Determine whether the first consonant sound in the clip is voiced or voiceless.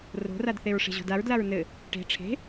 voiced